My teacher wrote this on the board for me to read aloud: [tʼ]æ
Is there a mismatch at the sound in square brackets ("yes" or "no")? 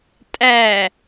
no